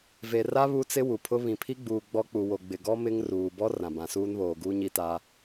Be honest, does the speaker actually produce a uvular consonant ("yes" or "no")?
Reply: no